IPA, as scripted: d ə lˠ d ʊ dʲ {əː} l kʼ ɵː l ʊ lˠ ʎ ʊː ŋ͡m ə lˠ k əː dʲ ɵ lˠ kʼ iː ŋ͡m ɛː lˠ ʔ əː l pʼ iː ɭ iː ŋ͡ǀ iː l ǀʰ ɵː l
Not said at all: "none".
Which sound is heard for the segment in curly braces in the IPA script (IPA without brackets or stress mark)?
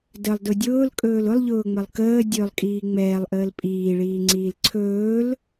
ʊː